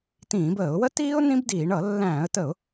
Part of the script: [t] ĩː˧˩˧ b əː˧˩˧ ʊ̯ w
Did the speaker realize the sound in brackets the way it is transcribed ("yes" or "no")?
yes